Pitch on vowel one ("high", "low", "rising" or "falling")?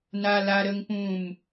high